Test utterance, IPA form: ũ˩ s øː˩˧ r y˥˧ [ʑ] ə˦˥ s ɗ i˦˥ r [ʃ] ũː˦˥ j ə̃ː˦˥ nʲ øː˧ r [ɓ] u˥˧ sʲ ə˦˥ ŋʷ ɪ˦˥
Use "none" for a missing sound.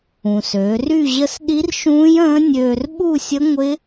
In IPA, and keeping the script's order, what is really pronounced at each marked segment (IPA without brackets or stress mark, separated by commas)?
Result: ʑ, ʃ, ɓ